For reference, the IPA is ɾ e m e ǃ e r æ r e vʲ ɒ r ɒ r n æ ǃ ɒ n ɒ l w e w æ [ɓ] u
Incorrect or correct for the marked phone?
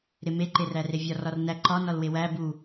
incorrect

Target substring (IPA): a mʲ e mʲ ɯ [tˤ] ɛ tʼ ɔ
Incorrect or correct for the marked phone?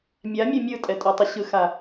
incorrect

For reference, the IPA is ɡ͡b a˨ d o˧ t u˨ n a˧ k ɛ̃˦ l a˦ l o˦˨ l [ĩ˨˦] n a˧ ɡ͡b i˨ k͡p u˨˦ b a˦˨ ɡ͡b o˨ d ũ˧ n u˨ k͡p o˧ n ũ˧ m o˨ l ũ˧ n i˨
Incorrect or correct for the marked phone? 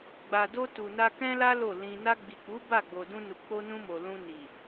incorrect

